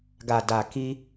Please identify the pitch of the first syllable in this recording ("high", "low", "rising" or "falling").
low